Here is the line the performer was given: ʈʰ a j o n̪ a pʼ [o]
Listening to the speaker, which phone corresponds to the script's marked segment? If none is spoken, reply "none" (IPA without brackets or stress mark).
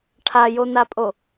o